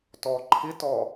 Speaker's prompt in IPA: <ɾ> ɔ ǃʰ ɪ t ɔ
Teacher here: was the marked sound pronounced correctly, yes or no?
no